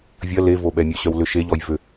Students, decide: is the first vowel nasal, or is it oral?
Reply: oral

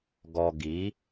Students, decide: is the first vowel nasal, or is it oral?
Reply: oral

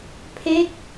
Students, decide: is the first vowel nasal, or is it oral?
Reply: oral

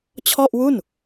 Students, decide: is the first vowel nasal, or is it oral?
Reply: oral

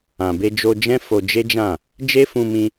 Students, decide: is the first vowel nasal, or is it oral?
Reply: nasal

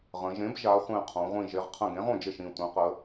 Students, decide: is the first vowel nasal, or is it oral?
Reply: nasal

